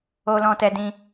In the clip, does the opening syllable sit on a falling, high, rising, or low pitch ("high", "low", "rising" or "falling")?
high